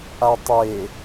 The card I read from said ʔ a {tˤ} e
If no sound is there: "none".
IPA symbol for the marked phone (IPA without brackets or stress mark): tˤ